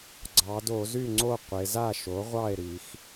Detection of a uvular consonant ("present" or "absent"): present